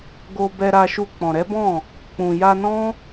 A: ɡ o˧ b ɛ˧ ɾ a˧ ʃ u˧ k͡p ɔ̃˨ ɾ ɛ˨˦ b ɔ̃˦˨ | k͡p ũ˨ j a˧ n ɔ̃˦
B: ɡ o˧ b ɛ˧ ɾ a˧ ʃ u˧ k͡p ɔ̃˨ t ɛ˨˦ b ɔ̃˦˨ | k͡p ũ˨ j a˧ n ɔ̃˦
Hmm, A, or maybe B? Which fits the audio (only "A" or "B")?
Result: A